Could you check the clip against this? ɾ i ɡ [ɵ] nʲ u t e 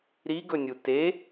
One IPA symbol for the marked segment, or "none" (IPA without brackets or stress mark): ɵ